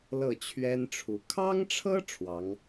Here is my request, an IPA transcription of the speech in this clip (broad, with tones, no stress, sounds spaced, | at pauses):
l ɤ˥˩ t͡ɕʰ ɥ ɛ˥ n ʈ͡ʂʰ u˧˥ kʰ ɑ˥ ŋ ʈ͡ʂʰ ɤ˥ ʈ͡ʂʰ w ɑ˧˥ ŋ